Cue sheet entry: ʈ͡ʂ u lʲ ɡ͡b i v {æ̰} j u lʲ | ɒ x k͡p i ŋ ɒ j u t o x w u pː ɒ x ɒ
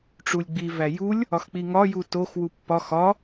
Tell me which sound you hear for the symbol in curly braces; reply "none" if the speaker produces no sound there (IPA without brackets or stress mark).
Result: æ